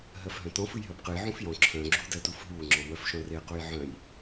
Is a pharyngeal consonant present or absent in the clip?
present